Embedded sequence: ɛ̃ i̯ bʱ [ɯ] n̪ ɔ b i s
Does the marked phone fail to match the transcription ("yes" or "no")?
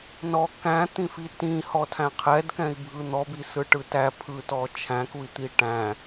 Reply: no